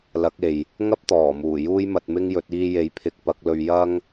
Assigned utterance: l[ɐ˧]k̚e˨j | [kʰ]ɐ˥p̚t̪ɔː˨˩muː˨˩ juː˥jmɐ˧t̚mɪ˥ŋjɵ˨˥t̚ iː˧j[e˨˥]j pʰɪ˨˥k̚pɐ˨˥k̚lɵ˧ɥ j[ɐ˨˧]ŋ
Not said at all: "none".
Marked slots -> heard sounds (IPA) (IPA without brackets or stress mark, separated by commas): ɐ˨˥, ŋ, e˨˥, ɐ˥